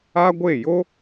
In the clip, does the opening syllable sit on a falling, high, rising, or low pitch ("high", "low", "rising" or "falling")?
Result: high